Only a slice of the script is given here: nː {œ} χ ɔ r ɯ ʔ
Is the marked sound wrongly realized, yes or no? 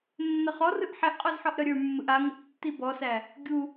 yes